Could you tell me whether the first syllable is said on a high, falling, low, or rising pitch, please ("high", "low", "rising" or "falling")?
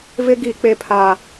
high